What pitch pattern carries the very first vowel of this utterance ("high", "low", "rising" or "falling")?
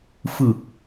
low